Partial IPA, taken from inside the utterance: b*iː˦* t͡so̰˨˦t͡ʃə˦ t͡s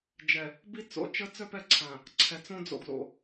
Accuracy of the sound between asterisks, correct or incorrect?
incorrect